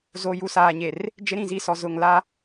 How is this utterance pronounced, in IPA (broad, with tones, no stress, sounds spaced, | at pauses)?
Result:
z o˨ j u˨ s aː˨ ɲ e˨ r | d͡ʒ ɪ˦ ɾ ĩ˨ z i˦˨ s ɔ˨ z ʊ˨ ŋ l a˦